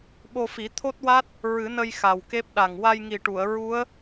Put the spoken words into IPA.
ɓo˧fi˨˩˦t̪ʰo˦˥t̚wa˦˥t̚ | ɹɨ˨˩˦nə˧j xa˨˩wke˦˥p̚ɗa˨˩ŋ wa˧jŋi˨˩ʈu˨˩˨ə̯ ɹu˧˥ə̯

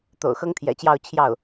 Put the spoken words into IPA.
t̪o̰˨˩ʊ̯xɤ˥ŋt̪ʰjɛ̰˨˩t͡ɕjɑ˥˧ʊ̯ t͡ɕʰjɑ˥˩ʊ̯

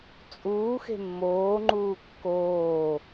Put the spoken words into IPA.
t͡sʼuːxe̤ mːoːŋ͡ǃuː kːoː

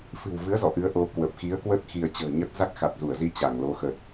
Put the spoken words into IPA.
fɨ̤˨˩wvɨ˨˦ə̯ zɔ̰˧˨ʔɨ˨˦ə̯ ʔo˧kwə˨˩p̚ xi˨˦ə̯kwə˦˥t̚ xi˧ə̯ t͡ɕə̤ː˨˩ɲə˦˥t̚ za˦˥k̚xa˨˩t̚zu˧˩ə̯zi˧ t͡ɕa˧˩ŋlo˨˦xə˨˩t̚

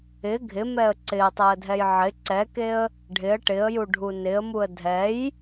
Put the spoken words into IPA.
ɪ ɡʱɪmɛə̯ ǀɪə̯tˤɛə̯dʱɛj ʕɪ ǀɛkeə̯ | ɖʱɪə̯ ʈɪə̯juɖʱu nɪə̯muə̯ dʱɛj

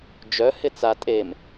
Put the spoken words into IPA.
d͡ʒœ hɪt͡sa tʼem

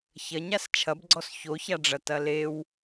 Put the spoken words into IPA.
çɐɲas t͡ʃʰɐbɡ͡ǀɔs çoçaɖ͡ʐɐ tɐlew

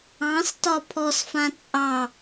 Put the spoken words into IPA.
ɑ̃stɒ pʰɔsfã t͡sʼɑ

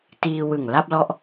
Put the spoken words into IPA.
tiː˧wɯ˨˩ŋ la˥˩p̚lɔ˦˥ʔ

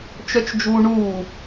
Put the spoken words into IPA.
t͡ʃœt͡ʃd͡ʒuːɳuː

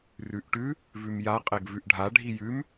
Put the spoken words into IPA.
rʉʔʈʉ | vʉmja qʼeɡvʉʔɖʱa ɖʱijʉm

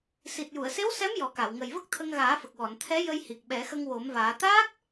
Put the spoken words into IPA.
si˨˩t̚ju˨˩˨ə̯se˧˥w sɛ˧˥m jɔ˨˩˦ka˨˩˨w ŋə˨˩jvə˦˥k̚t̪ʰə˧ŋ ɣaː˨˩˦fə˨˩k̚wɔ˨˩˨nt̪ʰɛ˧˥ jə˧jhi˨˩k̚ ɓɛ˨˩˦xə˧ŋwo˨˩˦mvaː˨˩˦ t̪aː˦˥k̚

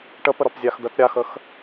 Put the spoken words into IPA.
ʈəpəɾɒp zʲaxd̪ət ɾʲaxəx

